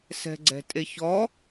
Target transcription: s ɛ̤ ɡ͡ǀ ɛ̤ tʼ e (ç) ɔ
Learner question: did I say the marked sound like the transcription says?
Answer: yes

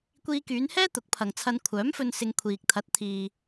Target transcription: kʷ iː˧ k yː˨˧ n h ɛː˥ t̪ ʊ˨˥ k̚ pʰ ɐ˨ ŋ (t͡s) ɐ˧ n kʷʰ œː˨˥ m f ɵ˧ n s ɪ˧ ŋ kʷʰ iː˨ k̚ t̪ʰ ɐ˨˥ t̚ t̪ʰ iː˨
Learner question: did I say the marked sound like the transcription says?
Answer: no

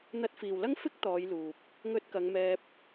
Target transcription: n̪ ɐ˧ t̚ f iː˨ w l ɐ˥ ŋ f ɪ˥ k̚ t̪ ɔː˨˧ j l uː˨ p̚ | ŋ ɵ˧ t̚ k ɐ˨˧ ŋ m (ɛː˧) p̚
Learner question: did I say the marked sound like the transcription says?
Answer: yes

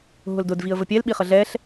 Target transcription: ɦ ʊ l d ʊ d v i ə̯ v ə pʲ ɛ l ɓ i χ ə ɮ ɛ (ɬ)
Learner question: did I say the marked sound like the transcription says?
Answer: yes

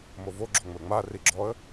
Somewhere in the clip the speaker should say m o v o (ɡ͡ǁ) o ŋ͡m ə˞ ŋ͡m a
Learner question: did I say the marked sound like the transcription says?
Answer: yes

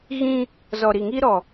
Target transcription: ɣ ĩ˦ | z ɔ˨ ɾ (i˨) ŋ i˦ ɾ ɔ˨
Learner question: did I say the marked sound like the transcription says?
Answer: yes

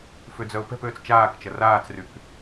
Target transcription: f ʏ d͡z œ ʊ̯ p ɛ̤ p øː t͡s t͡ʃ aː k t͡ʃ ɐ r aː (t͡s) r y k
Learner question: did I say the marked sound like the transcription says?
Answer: yes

